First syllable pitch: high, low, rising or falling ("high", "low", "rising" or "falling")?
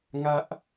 high